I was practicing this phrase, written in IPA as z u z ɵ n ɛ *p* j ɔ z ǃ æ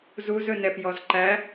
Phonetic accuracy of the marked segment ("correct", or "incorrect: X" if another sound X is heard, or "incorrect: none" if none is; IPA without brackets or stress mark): correct